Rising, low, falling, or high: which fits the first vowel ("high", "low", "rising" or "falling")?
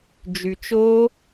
low